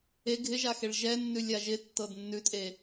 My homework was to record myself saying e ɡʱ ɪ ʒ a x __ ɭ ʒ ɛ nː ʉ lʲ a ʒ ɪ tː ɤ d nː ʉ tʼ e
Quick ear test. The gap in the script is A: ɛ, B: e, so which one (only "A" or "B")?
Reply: B